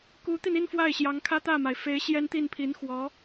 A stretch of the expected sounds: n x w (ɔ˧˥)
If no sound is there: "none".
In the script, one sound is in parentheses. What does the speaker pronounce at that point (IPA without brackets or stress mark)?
ɔ˧˥